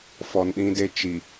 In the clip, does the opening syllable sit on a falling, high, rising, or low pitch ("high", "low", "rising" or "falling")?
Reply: low